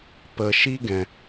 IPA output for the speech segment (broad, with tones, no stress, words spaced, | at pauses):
pə˨ʃi˦ ɡɛ̃˨